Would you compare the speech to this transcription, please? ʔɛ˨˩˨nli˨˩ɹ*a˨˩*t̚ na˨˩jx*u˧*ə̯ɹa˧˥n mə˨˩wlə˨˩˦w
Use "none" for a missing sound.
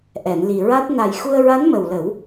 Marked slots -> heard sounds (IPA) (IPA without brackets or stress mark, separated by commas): a˦˥, u˧